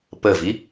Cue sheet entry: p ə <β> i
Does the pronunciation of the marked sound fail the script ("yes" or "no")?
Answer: yes